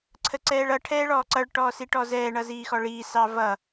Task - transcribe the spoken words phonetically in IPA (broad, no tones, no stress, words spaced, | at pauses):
ǀʰəǀɛːɭʌ ʈʰɛːɭɔːǀʌɭ ʈɔːsiʈɔzɛː ɳʌziːxɔɭiː sɑvʌ